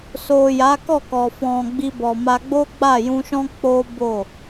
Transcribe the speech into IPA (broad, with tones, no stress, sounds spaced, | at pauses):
s o˨ j a˨˦ k ɔ˦˨ k ɔ˨ f ɔ̃˨ ɡ͡b i˧ b ɔ˨ m a˧ ɡ͡b o˦ ɡ͡b a˦˨ j ũ˧ ʃ ɔ̃˦ k͡p o˦ b o˦˨